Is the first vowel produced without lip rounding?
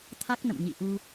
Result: yes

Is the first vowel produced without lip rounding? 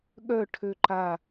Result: no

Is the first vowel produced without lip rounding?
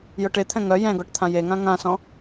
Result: no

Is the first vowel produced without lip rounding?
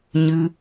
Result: yes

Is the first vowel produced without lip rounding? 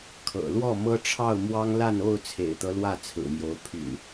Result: yes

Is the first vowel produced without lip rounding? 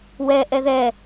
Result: yes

